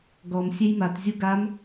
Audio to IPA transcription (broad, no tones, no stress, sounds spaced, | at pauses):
ɡ ɔ m sʲ e j m a t zʲ u ɡ a m